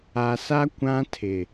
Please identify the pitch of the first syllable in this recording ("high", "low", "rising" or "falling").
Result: low